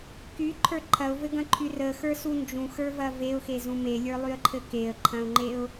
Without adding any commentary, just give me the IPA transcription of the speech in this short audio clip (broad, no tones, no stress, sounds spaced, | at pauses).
k y ǃʰ ə˞ ǃʰ ɐ ʊ̯ v ɘ ɡ ɐ̃ ǃʰ y r ə x ə˞ s u n d͡ʒ ũ x ə˞ v ɐ v e ʊ̯ x e z ũ m e lʲ ə˞ lˠ y ə̯ ǃʰ ɘ k e ə̯ ǃʰ ɐ̃ ʊ̯ ŋ͡ǃ e ʊ̯